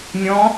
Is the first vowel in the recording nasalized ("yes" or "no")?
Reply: yes